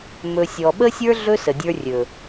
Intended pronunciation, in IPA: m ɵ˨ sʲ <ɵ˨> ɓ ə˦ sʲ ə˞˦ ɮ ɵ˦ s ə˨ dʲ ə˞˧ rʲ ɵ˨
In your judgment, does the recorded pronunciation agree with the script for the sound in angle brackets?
no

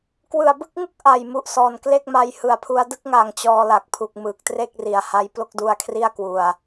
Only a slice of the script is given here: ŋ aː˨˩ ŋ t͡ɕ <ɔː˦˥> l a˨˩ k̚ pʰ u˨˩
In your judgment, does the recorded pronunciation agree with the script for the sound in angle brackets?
no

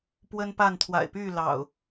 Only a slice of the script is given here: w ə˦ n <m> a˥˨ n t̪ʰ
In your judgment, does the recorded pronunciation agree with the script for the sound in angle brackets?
no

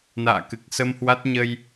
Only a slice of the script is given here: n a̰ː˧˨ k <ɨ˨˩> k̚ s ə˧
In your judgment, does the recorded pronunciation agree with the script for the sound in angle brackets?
yes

